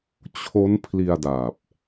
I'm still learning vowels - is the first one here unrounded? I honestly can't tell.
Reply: no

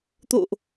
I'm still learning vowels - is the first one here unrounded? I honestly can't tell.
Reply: no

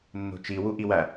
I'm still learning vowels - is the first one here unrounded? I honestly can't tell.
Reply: no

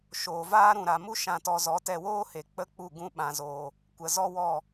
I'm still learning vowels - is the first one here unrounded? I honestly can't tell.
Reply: no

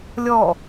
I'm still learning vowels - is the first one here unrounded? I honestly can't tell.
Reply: no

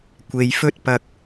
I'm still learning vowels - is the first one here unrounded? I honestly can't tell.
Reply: yes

